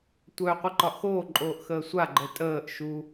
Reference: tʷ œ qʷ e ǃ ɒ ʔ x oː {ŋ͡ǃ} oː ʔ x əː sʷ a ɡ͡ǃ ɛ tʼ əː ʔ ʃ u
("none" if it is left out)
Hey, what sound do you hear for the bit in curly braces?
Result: ǃʼ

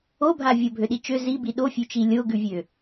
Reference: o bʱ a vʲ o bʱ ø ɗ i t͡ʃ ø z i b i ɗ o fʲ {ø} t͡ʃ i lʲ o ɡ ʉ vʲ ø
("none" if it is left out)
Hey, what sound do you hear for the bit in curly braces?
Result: ʉ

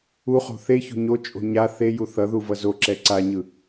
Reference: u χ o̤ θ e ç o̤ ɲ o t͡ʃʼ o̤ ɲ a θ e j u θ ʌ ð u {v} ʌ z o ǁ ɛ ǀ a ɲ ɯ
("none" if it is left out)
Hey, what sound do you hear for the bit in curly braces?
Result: v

